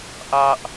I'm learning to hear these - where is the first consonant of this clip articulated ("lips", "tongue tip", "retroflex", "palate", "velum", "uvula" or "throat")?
throat